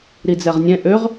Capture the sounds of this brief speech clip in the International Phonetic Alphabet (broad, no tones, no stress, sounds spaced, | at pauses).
ɾ i d͡z ɛ ʁ nʲ ɛ̃ ʔ ø ʁ